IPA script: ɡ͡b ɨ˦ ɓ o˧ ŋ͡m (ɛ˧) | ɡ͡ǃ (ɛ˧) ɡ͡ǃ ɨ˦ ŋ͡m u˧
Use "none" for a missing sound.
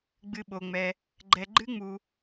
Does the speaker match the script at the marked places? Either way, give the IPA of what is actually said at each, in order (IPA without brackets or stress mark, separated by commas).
ɛ˧, ɛ˧